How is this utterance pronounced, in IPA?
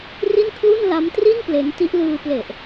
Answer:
r i˥˩ n kʰ l u˥˩ n l a˦˥ m t r i˥˩ n p l e˦˥ n t i˦˥ ʔ l ɯː˧ p l e˨˩ ʔ

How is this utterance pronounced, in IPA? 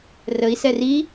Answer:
r ə i̯ s ɛ r i

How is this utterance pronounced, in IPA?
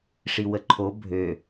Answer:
ʂ i w ə ǃʰ o bʱ ø

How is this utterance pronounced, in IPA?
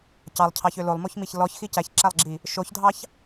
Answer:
c ɑ lˠ cʰ ɑ ç ø l o lˠ m o ç m i ç l ɔ ç x i c æ ç ǁ æ lˠ ɡ͡ǁ i | ʃ o ç dʱ ɑ ç

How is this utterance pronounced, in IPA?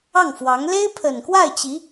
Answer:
ɑ˥˩ ŋ f w ɑ˧˥ ŋ l e˥ ɪ̯ pʰ ə˨˩ n k w a˥˩ ɪ̯ t͡ɕ i˧˥

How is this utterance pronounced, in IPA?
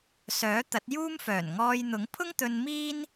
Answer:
s œː˨˥ t̪ ɐ˨˥ t̚ j uː˥ m f œː˨˩ n ŋ ɔː˧ j n̪ ʊ˨˥ ŋ pʰ ʊ˥ ŋ t̪ ɵ˧ n m iː˥ n

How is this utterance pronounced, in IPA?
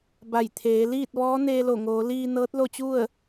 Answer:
b a˧˩ j t̪ʰ eː˩˧ l iː˥˨ t̚ ʋ ɔː˧˥ n eː˧ l o˧˩ ŋ oː˩˧ l iː˧ n ɤː˧˥ t̚ l o˥˨ t͡ɕ u˥˨ ə̯

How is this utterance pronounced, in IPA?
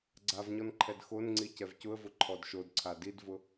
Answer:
ɡ͡ǀ a v ɲ ɔ n ǃʰ ɛ d x o n ŋ͡ǀ i c ɛ v c ʊ ə̯ v ʊ ǃʰ ɔ d ʃ o d ǀʰ a d i d v ʊ

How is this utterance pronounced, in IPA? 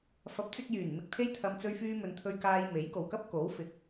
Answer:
f ɐ˨˥ p̚ t͡s ɪ˧ k̚ j yː˨˩ n m ɪ˧ k̚ t̪ʰ e˥ j t̪ʰ ɐ˧ m t͡s ɵ˧ ɥ f yː˧ m ɵ˨ n t̪ʰ ɵ˧ ɥ k aː˧ j m e˨˥ j k o˨ w k ɐ˥ p̚ k o˨˥ w f ɪ˨˥ k̚

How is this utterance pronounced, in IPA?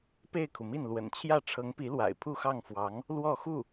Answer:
p e˥˩ ɪ̯ kʰ u˩ m i˥˩ n l w ə̰˨˩ n t͡ɕʰ j ä˥˩ ʈ͡ʂʰ ɤ˧˥ ŋ p i˧˥ l w a̰˨˩ ɪ̯ pʰ u˥˧ x ɑ˥˩ ŋ f w ɑ˧˥ ŋ | l w ɔ˥˧ x u˥˩

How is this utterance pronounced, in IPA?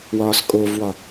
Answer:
w ɒː s kʼ o v w ɒ

